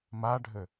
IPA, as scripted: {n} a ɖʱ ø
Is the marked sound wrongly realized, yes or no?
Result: yes